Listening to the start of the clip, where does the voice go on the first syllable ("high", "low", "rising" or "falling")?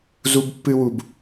high